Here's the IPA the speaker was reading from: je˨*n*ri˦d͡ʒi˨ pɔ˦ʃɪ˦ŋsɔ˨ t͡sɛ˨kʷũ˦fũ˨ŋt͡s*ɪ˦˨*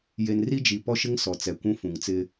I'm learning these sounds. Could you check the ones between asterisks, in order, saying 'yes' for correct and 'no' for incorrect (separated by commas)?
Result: yes, no